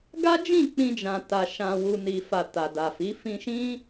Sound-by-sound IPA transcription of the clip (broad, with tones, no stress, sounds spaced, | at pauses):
ɡ a˦ d͡ʒ ĩ˦˨ k͡p ĩ˧ d͡ʒ ã˨ t a˨ ʃ ã˨ w u˨ n i˨ f a˨ t a˨ d a˨ f i˨˦ f ĩ˧ ʃ ĩ˦